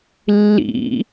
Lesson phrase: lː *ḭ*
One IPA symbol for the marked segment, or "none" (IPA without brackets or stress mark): ḭ